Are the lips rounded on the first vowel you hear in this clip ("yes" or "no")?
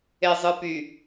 no